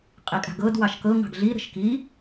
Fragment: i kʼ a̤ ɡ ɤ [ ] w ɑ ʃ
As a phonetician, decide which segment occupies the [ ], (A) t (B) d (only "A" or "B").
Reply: B